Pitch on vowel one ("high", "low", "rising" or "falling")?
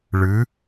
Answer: rising